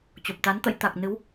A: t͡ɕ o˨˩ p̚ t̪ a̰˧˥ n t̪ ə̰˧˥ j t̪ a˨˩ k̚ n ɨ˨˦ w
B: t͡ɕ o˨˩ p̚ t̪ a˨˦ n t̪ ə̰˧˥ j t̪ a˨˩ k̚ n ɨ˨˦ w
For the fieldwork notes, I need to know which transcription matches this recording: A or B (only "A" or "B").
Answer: B